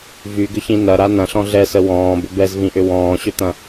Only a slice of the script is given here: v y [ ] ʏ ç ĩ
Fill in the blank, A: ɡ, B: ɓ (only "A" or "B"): A